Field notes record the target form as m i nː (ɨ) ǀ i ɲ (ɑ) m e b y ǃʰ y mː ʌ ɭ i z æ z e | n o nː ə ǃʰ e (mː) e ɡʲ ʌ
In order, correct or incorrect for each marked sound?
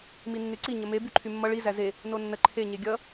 incorrect, incorrect, incorrect

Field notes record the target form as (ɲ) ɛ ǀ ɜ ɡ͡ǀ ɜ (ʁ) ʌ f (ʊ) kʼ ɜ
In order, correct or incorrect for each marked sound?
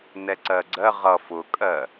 incorrect, correct, correct

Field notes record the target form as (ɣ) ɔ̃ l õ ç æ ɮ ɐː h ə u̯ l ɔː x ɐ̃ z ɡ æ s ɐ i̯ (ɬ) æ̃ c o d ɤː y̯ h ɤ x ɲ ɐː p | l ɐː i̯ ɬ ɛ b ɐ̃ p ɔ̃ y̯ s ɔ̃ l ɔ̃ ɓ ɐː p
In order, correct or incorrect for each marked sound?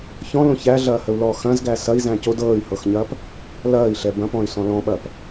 incorrect, incorrect

